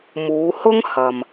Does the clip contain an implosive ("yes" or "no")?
no